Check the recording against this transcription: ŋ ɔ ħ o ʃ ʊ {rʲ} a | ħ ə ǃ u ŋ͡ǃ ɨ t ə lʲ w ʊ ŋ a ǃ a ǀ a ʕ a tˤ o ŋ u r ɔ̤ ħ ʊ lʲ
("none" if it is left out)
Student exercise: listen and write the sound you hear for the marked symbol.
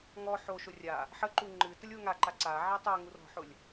rʲ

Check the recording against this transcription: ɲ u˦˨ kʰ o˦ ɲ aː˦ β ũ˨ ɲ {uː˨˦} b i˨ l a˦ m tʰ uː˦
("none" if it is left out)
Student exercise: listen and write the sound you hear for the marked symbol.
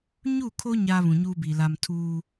uː˦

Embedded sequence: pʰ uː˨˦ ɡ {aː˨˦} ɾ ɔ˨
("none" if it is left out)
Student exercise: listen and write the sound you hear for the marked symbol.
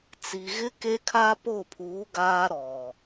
aː˦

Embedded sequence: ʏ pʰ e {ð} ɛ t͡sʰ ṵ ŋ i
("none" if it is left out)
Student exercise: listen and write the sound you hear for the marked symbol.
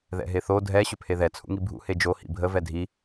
ð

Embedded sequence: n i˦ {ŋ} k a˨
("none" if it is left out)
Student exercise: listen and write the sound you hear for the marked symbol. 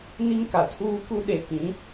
ŋ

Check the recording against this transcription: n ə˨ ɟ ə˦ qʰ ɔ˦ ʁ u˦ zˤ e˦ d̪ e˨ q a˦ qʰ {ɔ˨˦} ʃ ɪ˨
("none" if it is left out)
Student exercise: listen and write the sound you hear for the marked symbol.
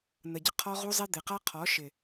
ɔ˨˦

